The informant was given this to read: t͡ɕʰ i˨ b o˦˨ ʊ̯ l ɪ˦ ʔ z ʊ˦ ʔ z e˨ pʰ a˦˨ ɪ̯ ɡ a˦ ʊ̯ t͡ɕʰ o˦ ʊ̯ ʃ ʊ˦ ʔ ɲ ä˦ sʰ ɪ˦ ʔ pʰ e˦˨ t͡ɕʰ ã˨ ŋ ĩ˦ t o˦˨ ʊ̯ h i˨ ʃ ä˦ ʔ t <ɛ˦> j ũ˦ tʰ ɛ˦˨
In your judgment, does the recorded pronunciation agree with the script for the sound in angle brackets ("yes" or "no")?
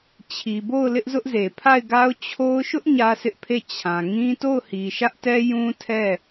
yes